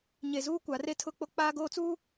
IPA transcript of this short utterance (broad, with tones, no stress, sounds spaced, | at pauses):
ɲ e˨ z uː˦ kʷ a˨˦ r e˦ tʰ ʊ˦ k͡p o˦ k͡p aː˦ ɡ oː˦ t͡s uː˦